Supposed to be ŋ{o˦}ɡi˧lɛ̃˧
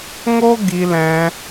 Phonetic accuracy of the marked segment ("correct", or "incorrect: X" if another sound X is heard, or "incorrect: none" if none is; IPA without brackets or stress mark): correct